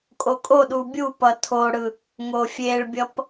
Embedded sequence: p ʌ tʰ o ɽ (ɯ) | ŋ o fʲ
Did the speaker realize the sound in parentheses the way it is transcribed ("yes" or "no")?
yes